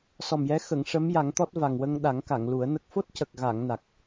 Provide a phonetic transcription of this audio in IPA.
sɔ˨˩mjɛ˧˥ xə˨˩˨ŋʂə˧˥mja˨˩˦ŋt̪ɔ˦˥t̚ va˨˩ŋwə˧ŋɗa˨˩˦ŋ ka˨˩˨ŋlu˨˩˦ə̯nə˦˥k̚ fo˦˥t̚cə˨˩k̚ɣa˨˩˨ŋ na˨˩k̚

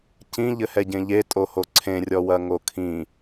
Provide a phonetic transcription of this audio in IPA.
cĩʎɘhɛɟẽ ʎetʼoho ǀʰẽrʲɔwɐŋo kʰĩ

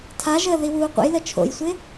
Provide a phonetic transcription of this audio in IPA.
tʰaʒəː ðiwuːqʷə̰jlə t͡ʃʰo̰jsʷɪ

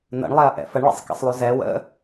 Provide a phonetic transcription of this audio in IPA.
nə̰ɳlˠɛɐ̯ʔɛ̰ fəɳɭɛ̰sˤkɛ̰sˤlˠu zɛ wə̰

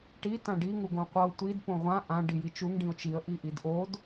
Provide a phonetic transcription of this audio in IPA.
ʈi tãɖi ŋuɡõqʷɤʊ̯ tʷid põʁʷã ʔã ɖijit͡ʃuŋ ɖĩʊ̯t͡ʃiə̯ ʔiʔidʔod

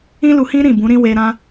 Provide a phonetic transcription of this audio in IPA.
ĩ˦lu˧hĩ˦ ɾĩ˦˨bũ˨˦ɾĩ˦we˧ ɾã˧

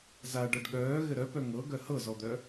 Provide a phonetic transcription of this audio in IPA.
za ɖʌɖɠœː ɣɘɾœpœ ŋɤ ɡœhɤzɔd̪œ

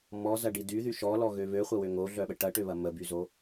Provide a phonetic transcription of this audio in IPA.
mɔzɐɖi dyðy ʃɔlɔɣø βøχʷɐwø ŋoɮœɓə ʈɐʈøβɐ məbyzo

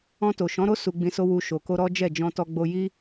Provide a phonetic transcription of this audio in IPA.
ɔ̃˧to˨ʃɔ̃˨˦ɾo˦ su˧ɡ͡bĩ˧so˦ wu˧ʃo˨ ko˧ɾɔ˦ d͡ʒɛ˦˨ d͡ʒɔ̃˧tɔ˧ ɡ͡bo˧ji˦

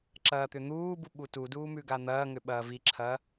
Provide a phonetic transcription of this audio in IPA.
ǁɐːt̪ʏn̪uːbu ɓutuduː mʉɡan̪ɐːŋʏ ɓɐːviǁʰɐː

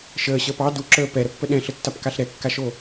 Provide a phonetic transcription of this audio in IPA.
ʃəːɕəːp ɑ duǁəː pɛɾəpːə ɗɛ̃ɬətːapkaɬ ɾɛkːaʃo

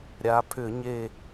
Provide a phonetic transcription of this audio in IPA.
ɾʲa˩˧pʰʏ˧˩˧ɲe˦˨

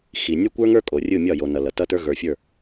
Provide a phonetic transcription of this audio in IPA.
xi˨ nʲə˞˦kʷə˞˦ŋə˞˦kʼo˨ rʲɯ˦˨mʲɒ˦˨ jo˨nʌ˨ lʌ˨tʌ˦tə˞˦ ɣə˞˨fʲə˞˦˨

